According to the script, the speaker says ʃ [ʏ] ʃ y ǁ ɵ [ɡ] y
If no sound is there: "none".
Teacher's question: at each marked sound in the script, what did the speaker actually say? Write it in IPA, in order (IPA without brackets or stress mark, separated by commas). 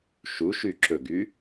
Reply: u, ɡ